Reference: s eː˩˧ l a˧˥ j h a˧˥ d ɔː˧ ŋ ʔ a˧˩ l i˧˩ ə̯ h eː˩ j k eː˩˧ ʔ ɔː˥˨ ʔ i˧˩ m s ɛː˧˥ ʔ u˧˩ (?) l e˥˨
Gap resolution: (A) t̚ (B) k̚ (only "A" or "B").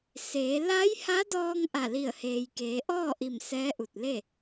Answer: A